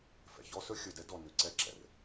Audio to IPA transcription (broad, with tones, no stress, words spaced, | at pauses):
fɛ̰˨çɔ˦sɵ˦ xʲɵ˨dɛ˦ dɔ˨ nʉ˨ǀɛ˦ǁɛ̰˨r